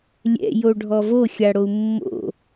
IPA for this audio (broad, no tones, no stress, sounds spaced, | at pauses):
lʲ ɛ̰ j o ɖʱ ɔ v o xʲ a ɽ o u̯ mː o̰